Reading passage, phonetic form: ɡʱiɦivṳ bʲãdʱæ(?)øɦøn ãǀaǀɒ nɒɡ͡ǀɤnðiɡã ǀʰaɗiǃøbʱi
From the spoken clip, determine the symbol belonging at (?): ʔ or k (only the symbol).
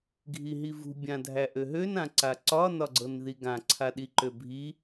ʔ